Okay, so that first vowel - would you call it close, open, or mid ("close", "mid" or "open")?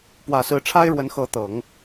open